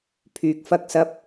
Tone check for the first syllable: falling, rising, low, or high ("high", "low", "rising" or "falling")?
low